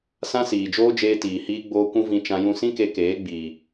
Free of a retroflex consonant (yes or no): yes